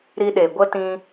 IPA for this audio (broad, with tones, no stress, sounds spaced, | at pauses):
ɾ i˧ ɗ e˨ ɡʷ ə˧ t ĩ˧